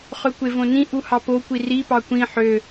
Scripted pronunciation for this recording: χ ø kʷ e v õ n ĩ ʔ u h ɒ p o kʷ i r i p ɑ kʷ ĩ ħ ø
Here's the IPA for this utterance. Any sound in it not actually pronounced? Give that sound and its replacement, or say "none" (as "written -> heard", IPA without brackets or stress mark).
ɒ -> ɑ